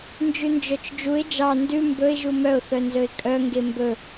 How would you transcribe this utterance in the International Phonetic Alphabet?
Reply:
nd͡ʒʉnd͡ʒœt͡ʃd͡ʒuɪ̯ d͡ʒɑ ndʉ mbɵɪ̯ ʒumœʊ̯ θœnzɵɪ̯kʼœ ŋɡembɵ

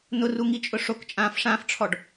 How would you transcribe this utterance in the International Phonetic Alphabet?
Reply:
nʊruŋit͡ʃʼʊ ʂokt͡ʃʼãːfʂãːfʈ͡ʂʰɔɖ

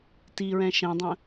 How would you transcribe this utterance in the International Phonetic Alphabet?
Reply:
tiɹɛ̃ ʃɛ̃dˤə̃

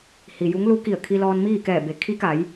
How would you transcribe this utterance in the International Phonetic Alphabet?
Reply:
hi˩ju˧˥ŋlu˧˥ki˧˩ə̯ kʰi˧lɔː˧nmiː˥˨kɛː˧˩ be˩˧ kʰi˧˥ka˩˧j

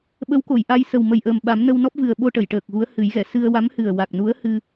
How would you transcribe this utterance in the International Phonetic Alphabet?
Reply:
ɓə˧˥wko˨˩˨jʔa˧j sə˨˩wmə˨˩jʔəː˨˩mɓa˨˩˦m nə˧wnɔ˦˥p̚vɨ˨˩ə̯ɓo˧ ʈə˨˩˨jʈəː˨˩k̚ɣu˧˥ə̯ hɨ˨˩˦jɣɛ˨˩˨ sɨ˧ə̯ wa˧˥mhɨ˨˩ə̯wa˨˩k̚nu˧˥ə̯ hɨ˧

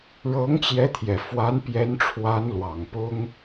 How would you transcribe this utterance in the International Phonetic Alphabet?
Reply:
ɻɤ˧˥ŋt͡ɕjɛ˧˥t̪ʰjɛ˨˩ fwa˧˥npjɛ˧˥nʈ͡ʂʰwa˧˥n lwɑ˨˩ŋpʊ˥ŋ

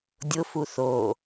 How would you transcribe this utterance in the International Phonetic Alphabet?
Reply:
dʲʊ fuθo

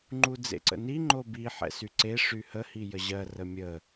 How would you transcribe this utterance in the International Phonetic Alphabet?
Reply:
ŋ͡ǃud͡zḛǀə̰ni ŋ͡ǃobi ħɛ̰syǀe ʂyhə hijəʑɜ rəmʲə

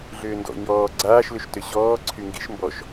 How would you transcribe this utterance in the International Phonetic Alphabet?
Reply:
ɮʏːndɔ̰ ɲɔː ɡ͡ǀaːʃlʏʃtʏ ɕɔː ǀʰyŋɡḭʃ mbɔʃ

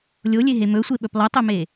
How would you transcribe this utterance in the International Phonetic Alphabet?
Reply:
lʲolʲeɦe mɵsʷeɓɵp lˠɵtˤɵme

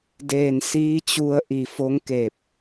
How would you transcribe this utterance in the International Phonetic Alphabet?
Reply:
deː˧˩n siː˧˥t͡ɕu˧ə̯ ʔi˧˩fo˧˥ŋkeː˧˩p̚

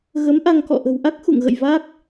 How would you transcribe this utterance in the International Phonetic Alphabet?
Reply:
ɣə˨˦mʔa˧ŋkɔ̰˧˨ ʔə̤˨˩wʔa˦˥k̚ xṵ˧˨ŋɣə̰˧˨j va˦˥k̚

